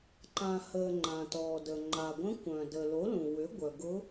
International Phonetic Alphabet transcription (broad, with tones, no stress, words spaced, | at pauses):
ǃã˩həː˩ ŋ͡ǃã˩tɔː˩də˩ ŋ͡ǃa˩ɡʷə̃˧˥ kʷœ̃˩ dəː˩lo˩˥lũ˩ wʏ˩˥ ɡʷœ˩ ɡʊ˧˥